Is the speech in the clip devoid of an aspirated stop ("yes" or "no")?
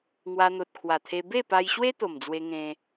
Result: no